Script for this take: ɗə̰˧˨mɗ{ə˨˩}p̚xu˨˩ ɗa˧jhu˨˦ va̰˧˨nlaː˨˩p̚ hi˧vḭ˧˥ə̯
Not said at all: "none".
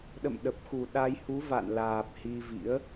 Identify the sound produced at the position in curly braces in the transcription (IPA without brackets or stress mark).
ə˨˩